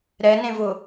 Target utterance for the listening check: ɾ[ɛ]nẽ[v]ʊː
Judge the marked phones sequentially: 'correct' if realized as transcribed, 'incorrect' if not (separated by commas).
correct, correct